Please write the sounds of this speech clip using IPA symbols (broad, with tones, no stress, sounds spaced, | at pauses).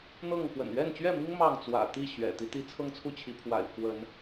n̪ ɤ˥˨ ŋ k w ə̰˨˩ n ɥ ɛ˥˨ n t͡ɕ ɥ ɛ˥˨ m i˦ ŋ m ɑ˥˨ ŋ t͡s w ä̰˨˩ t̪ i˥˨ ɕ ɥ ɛ̰˨˩ t̪ i˨˦ t̪ i˨˦ t͡sʰ ɤ˦ ŋ t͡sʰ u˦ t͡ɕʰ i˨˦ pʰ w a̰˨˩ ɪ̯ pʰ w ə˨˦ n